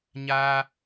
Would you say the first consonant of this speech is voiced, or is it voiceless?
voiced